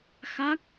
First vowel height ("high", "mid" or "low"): low